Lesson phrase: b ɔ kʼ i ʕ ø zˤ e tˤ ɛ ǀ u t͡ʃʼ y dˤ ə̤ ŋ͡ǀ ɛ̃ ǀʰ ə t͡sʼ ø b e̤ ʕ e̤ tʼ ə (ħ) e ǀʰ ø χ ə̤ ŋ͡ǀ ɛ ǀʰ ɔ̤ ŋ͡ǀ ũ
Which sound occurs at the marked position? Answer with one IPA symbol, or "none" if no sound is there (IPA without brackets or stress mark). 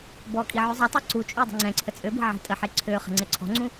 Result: ħ